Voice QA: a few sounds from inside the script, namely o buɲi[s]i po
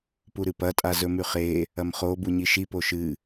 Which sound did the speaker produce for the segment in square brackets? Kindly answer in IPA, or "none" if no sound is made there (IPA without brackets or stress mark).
ʃ